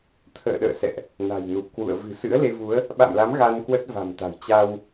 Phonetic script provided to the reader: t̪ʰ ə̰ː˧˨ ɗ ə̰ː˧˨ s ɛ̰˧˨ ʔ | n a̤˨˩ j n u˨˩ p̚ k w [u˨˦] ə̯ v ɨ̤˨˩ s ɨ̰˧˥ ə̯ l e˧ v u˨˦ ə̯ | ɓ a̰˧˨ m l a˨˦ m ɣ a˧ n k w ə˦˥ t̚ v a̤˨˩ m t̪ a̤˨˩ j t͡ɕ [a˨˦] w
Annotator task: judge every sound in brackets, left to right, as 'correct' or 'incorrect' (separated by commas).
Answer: incorrect, incorrect